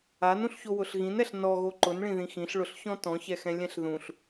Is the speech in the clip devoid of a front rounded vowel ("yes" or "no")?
yes